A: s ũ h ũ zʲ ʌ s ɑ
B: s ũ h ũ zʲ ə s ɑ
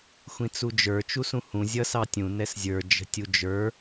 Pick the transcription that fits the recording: A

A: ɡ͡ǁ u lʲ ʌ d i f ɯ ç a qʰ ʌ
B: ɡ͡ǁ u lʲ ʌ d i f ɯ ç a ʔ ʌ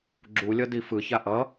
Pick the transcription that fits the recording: B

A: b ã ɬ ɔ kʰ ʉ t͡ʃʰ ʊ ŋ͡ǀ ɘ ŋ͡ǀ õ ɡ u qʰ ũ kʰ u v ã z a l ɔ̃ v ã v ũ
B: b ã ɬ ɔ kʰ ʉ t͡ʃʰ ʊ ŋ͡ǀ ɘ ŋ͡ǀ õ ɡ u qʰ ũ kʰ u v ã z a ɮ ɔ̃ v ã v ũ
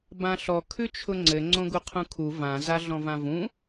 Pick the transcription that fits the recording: B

